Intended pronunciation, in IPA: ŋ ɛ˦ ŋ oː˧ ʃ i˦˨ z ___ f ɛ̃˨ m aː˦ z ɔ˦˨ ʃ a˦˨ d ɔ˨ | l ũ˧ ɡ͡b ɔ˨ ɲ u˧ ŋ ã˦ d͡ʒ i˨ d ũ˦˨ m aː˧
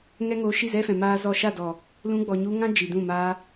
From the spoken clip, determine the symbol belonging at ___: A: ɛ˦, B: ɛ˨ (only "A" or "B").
A